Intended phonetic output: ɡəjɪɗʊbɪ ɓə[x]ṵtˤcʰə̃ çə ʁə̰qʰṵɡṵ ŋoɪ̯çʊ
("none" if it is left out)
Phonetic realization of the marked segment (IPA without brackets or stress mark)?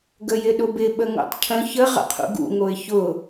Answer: ŋ